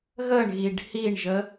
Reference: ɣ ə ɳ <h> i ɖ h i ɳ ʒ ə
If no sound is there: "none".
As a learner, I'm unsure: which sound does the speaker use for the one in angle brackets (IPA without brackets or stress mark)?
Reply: ɣ